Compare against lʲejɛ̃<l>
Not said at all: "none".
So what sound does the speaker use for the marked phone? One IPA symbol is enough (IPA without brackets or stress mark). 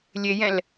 l